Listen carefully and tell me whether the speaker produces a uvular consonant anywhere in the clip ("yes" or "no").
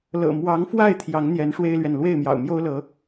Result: no